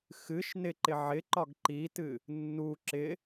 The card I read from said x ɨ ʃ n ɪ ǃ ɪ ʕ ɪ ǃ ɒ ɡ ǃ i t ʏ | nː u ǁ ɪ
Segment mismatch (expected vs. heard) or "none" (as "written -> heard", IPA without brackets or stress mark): ʏ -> ɨ